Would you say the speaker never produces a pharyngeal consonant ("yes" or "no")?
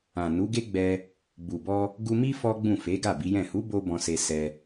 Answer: yes